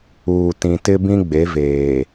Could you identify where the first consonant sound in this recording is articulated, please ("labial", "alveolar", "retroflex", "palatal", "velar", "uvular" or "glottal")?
alveolar